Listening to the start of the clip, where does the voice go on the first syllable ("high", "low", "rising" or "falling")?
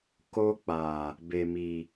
high